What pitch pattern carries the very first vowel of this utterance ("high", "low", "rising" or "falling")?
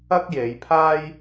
high